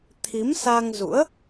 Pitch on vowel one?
rising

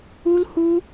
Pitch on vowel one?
high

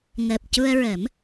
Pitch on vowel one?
low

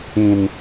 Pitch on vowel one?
low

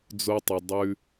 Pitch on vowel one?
high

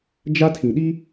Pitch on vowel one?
high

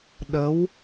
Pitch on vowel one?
rising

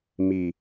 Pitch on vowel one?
low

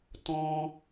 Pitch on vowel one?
high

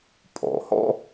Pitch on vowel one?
low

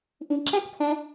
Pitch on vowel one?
low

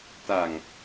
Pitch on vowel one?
low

